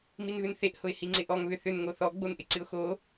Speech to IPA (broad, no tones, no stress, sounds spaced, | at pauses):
m i n β ʏ n θ e ʔ h ʊ ɪ̯ h i ŋ͡ǀ ɪ ʔ ɔ ŋ β ʏ θ ʏ n ŋ o θ ɔ ɡ͡b o n ʔ ɪ ǀ ɨ ʊ̯ x o